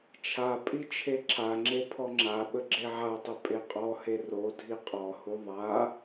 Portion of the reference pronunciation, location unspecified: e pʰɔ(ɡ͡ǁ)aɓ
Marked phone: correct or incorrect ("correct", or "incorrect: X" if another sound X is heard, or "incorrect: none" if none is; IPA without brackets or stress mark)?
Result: incorrect: ŋ͡ǁ